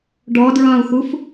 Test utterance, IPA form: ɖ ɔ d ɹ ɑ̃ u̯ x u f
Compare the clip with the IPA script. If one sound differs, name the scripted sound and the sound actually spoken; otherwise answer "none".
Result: none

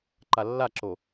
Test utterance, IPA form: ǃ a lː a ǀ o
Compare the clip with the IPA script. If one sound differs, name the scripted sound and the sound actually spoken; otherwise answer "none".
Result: ǀ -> ǁ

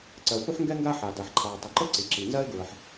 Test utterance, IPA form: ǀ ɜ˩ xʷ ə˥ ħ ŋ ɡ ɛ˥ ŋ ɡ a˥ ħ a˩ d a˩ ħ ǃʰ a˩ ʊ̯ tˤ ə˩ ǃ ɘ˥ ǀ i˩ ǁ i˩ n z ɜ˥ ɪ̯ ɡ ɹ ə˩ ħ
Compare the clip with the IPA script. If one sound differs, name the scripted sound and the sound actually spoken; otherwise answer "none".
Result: none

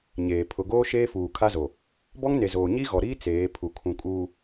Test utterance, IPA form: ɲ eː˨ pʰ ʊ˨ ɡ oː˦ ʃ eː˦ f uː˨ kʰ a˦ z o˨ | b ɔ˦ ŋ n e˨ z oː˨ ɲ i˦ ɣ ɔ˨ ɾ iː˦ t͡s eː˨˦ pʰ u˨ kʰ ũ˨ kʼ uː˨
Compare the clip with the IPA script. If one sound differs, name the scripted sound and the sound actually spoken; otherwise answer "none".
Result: none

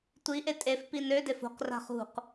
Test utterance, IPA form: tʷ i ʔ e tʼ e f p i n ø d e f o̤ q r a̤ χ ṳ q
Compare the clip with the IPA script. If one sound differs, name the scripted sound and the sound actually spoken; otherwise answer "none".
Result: none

